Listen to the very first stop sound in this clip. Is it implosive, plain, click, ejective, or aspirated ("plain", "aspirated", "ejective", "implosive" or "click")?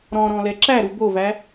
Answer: click